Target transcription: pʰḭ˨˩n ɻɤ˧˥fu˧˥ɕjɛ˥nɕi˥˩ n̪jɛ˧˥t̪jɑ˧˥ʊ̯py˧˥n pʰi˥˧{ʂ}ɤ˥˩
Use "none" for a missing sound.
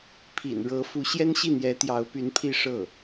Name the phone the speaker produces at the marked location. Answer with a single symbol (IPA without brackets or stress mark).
ʂ